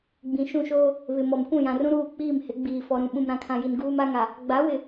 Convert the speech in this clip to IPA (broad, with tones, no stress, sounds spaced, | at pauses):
ɡ͡b ĩ˨ ʃ ũ˦˨ ʃ oː˦ | β ɪ˨ m ɔ˨ m kʷ ũ˦˨ j ã˨ r ũ˦ ɾ uː˦˨ k͡p iː˦˨ m h ɪ˨˦ ɡ͡b iː˨ f ɔ˨ ɾ ũ˨ ɓ ũ˨ m ɾ ã˨ kʰ ã˨ j i˨ n ɡ uː˦ m a˦ ŋ a˨ | ɡ͡b a˨˦ w ɪ˨